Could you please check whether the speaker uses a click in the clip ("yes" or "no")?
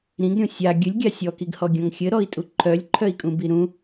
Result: yes